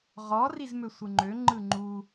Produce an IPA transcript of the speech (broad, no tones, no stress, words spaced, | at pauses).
ʁɔ rizmøsʷɯŋ͡ǃø ŋ͡ǃɯŋ͡ǃu